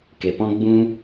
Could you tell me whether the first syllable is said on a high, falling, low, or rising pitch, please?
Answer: low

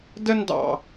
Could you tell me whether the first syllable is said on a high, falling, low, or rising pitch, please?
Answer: high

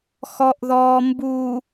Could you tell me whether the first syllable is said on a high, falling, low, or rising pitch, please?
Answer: low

